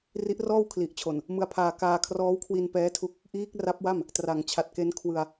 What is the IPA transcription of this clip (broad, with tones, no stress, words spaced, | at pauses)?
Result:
ri˦˥ʔrɔː˥˩wkʰli˨˩ʔt͡ɕʰo˨˩n | mɯ˦˥a̯pʰaː˧ kaː˧kʰrɔː˦˥wkʰwi˧n pɛː˦˥tʰu˦˥k̚ | ʔiː˦˥k̚ra˦˥p̚wa˥˩m | tra˩˦ŋt͡ɕʰa˨˩t̚ke˦˥n kʰwɯ˧a̯